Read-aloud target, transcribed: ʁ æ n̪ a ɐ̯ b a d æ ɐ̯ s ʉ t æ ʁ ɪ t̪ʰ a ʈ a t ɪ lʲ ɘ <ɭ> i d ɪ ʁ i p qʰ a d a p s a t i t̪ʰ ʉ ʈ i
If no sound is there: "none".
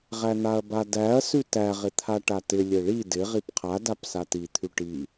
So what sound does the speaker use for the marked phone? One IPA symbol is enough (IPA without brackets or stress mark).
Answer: ɭ